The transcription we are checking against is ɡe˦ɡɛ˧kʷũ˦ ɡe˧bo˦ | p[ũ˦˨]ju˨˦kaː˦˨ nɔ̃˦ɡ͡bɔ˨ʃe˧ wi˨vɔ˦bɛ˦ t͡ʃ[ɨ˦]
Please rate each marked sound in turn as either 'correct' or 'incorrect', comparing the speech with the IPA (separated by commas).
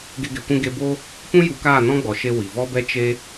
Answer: incorrect, incorrect